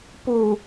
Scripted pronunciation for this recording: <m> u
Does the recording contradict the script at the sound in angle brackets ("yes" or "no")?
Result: yes